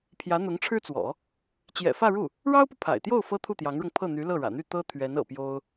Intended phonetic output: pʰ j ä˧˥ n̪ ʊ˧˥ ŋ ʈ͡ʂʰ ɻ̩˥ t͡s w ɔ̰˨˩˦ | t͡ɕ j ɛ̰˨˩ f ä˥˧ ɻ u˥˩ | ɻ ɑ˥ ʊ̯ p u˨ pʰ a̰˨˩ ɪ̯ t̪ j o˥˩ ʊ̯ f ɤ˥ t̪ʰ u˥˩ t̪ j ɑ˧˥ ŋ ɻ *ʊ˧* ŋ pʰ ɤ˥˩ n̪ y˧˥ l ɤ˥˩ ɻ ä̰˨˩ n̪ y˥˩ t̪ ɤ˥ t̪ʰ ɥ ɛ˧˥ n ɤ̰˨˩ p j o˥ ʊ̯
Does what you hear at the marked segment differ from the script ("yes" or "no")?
no